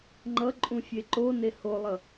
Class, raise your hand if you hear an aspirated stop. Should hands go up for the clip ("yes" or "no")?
no